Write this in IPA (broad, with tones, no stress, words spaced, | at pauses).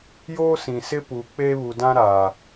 joː˦sĩ˨sɪ˦ pu˨ k͡pe˦βu˨dã˦ ɾa˨